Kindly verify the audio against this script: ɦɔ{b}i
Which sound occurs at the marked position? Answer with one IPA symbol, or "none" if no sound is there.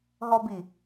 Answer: b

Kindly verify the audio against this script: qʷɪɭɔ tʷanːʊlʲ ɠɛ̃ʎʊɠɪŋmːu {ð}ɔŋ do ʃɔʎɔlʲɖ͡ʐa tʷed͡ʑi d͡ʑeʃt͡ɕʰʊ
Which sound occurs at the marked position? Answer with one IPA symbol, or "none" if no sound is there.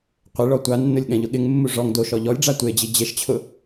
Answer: ʐ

